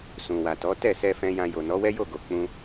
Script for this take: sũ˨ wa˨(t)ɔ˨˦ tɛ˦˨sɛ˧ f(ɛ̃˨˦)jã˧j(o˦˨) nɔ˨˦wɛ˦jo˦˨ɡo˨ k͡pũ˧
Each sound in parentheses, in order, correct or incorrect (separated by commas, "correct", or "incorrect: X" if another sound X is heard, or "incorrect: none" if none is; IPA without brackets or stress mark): correct, incorrect: ɛ̃˧, incorrect: o˨